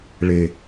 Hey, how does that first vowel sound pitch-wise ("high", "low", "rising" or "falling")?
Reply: low